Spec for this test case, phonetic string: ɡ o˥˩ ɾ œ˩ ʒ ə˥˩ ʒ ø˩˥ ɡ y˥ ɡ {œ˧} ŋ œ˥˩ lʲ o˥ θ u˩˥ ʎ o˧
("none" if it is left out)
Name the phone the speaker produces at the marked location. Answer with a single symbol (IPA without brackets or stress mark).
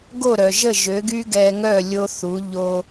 ɛ˧